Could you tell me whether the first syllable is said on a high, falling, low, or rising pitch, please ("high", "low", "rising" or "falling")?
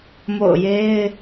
falling